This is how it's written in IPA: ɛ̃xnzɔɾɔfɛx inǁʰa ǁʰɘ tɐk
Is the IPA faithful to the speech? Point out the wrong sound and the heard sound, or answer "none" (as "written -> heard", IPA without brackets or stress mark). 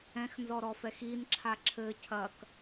t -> cʰ